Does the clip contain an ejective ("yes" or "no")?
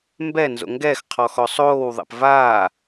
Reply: no